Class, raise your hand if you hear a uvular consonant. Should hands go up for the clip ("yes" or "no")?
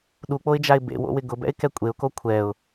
no